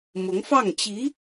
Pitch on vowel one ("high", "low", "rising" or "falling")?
rising